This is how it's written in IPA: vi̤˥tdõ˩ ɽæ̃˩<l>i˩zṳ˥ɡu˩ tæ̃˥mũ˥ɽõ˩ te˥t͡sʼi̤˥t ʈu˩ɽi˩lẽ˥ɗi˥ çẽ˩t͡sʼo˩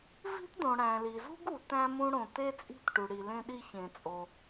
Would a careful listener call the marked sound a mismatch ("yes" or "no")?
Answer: no